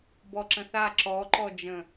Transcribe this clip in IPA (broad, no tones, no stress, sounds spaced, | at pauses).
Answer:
b ɔ ǁ ə̃ θ a ǁ ɔ ǃ ɔ d͡ʒ ə̃